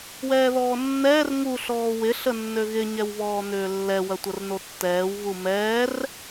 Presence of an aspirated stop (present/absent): absent